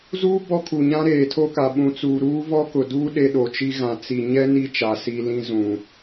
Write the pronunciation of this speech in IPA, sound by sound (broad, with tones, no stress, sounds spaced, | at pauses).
z uː˦ b ɔ˦ kʰ u˨ ɲ ã˦ ɾ eː˨ tʰ o˦ k a˨ ɓ ũ˨ t͡s uː˨ ɾ uː˦ v ɔ˦ k ʊ˨ d uː˦ ɗ e˦ ɗ o˨ t͡ʃ i˦ ɣ ã˨ t͡s i˨ ɲ ɛ˦ n i˦ t͡ʃ a˨ s i˨ l ĩ˦ z ũ˨